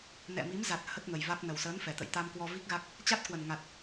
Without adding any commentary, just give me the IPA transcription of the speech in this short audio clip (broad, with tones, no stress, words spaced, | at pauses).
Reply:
nɛ̰˧˨mi˨˦mza˨˩t̚ hə˦˥t̚ŋə˨˩jva˦˥k̚ nə˨˩wsəː˨˦nfɛ˨˩t̪ə̰˧˨j t̪a˧mkwɔ˧vi˦˥k̚ɣa˦˥k̚ | t͡ɕa˦˥t̚kwə˨˩n ŋa˨˩t̚